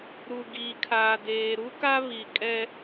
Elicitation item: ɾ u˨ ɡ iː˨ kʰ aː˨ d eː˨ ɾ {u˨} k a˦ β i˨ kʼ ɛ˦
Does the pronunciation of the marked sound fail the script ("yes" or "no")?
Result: yes